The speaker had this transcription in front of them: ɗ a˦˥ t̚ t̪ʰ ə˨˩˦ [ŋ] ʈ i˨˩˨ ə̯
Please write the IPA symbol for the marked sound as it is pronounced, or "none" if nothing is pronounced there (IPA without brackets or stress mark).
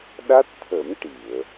m